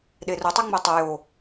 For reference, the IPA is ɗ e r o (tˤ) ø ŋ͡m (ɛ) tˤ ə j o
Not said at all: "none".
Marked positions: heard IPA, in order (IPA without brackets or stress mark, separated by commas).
tˤ, ø